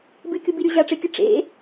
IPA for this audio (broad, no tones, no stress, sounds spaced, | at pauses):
b ɨ kʲ u b i ɾʲ u ʑ a ʈ͡ʂ e kʲ ɨ ʈ͡ʂ ḛ